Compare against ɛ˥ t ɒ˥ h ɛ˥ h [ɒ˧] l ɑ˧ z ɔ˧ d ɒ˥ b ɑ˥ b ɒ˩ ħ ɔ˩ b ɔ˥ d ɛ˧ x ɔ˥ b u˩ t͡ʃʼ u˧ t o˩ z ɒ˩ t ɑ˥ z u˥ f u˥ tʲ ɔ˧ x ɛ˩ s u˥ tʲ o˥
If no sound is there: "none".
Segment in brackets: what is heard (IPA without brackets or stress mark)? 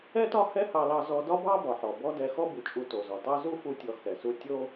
ɑ˧